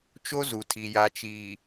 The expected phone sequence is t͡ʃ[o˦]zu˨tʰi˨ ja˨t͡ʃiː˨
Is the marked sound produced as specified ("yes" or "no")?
yes